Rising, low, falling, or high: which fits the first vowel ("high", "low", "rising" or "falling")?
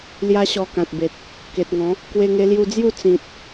high